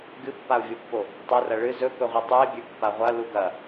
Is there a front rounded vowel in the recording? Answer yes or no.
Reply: no